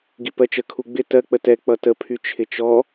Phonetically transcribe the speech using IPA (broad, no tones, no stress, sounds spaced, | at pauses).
ɡ i p ɜ t͡ʃ ə kʰ u ɡ͡b ɪ t ɜ k͡p ə t ɛ k͡p ʌ t ə pʰ y t͡ʃʰ ɪ t͡ʃ ɔ